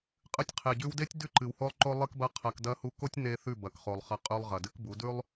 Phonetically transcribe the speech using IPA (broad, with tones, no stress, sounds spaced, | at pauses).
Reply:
qʼ ɨ˧ tʲ qʰ e˨ ɟ ʉ˧ w d e˦ tʲ d ʉ˦ ǃ ɨ˨ w h o˦ lˠ ǃ o˦ lˠ ɨ˦ k b ɐ˦ qʰ ɐ˧ k d ɐ˧ h u˧ k o˦ tʲ n e˦ θ ʉ˦˨ b ɐ˨ k χ o˨ lˠ χ ɐ˧ qʼ ʉ˧ lˠ ʁ ɐ˨ d ɨ˦ k b u˨˦ d ʉ˦ lˠ